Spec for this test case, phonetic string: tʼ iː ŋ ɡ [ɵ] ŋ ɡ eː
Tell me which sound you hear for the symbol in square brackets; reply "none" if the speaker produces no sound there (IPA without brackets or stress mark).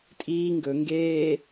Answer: ɵ